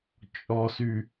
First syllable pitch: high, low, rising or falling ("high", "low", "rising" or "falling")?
low